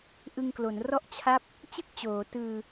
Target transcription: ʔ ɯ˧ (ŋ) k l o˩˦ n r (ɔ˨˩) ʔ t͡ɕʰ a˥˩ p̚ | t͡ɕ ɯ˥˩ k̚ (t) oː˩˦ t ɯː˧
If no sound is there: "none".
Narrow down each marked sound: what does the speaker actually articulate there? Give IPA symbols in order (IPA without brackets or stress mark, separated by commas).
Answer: ŋ, ɔ˥˩, t͡ɕ